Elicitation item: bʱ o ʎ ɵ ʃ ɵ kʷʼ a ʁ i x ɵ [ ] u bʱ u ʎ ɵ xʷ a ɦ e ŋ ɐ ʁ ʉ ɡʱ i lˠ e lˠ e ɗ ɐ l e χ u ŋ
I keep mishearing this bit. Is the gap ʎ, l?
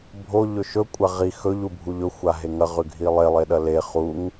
ʎ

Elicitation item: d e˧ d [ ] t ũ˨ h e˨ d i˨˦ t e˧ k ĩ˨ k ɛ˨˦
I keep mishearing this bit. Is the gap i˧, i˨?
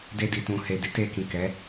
i˨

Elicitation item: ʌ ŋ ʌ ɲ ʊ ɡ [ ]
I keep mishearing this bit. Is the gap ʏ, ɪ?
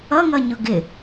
ɪ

